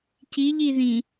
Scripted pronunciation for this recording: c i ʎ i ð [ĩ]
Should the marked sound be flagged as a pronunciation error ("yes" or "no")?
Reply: no